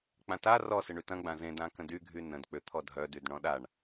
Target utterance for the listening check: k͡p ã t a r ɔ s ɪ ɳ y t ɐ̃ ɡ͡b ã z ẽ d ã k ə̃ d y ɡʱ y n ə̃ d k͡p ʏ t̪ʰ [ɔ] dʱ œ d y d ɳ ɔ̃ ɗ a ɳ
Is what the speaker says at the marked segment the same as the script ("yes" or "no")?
yes